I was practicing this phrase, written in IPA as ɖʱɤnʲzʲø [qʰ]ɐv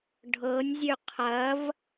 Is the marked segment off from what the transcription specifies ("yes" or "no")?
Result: no